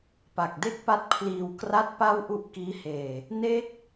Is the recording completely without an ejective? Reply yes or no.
yes